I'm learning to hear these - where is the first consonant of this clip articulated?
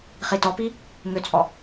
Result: uvula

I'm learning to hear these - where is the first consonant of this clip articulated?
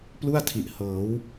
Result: lips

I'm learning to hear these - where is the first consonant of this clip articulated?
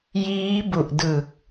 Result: palate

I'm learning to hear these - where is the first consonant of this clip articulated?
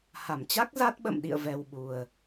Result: throat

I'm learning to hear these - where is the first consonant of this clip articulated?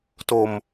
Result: tongue tip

